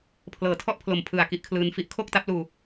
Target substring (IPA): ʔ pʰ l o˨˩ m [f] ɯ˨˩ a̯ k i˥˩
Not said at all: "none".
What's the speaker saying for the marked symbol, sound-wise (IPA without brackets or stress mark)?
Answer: pʰ